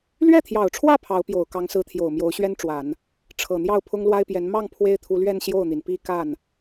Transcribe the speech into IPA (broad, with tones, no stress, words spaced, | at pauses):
lɥɛ˥˩t̪ʰjɑ˨˩ʊ̯ʈ͡ʂʰwä˥˩ pʰɑ˧˥ʊ̯pjo˨˩ʊ̯ kɑ˧˥ŋsɹ̩˧˥t̪ʰjo˨˩ʊ̯ mjo˧˥ʊ̯ɕɥɛ˥nʈ͡ʂwa˨˩˦n | ʈ͡ʂʰɤ˨˩n̪jɑ˥˩ʊ̯ pʰʊ˥ŋlwa˥ɪ̯pjɛ˧˥n mɑ˥˩ŋ pʰwe˥ɪ̯t̪ʰu˧˥lɥɛ˥˧n ɕjo˥˩ʊ̯n̪i˩n pi˥˧ ka˥˩n